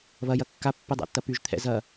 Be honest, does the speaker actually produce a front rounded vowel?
yes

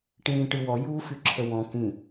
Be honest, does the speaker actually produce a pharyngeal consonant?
no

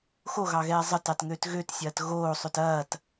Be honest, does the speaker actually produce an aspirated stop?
no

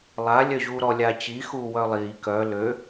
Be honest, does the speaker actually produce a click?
no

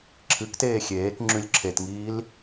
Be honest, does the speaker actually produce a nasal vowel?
no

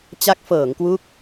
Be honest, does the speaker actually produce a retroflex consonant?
no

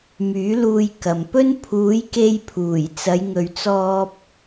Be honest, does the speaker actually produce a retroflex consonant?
no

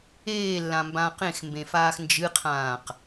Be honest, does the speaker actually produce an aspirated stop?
yes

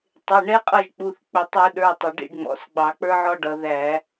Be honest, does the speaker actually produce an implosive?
yes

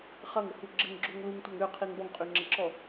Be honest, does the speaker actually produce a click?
yes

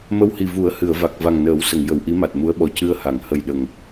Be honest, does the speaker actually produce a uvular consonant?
no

